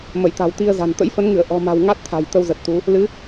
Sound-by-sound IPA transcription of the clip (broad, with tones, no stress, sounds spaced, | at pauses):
m ə˧˩ j t̪ a̤˨˩ w t̪ i˧ ə̯ z a̤˨˩ n t̪ ə̰˧˥ j f ə˨˦ n ŋ ɨ˧˩ ə̯ ʔ ɔ̤˨˩ m a̤˨˩ w ŋ a˦˥ t̚ t̪ʰ a̤˨˩ j t̪ ə˧ w z ə˨˩ t̚ t̪ u˨˦ | l ɨ˨˦